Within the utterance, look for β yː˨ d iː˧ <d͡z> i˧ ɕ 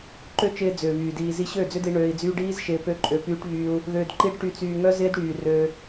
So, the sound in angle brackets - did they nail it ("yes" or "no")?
no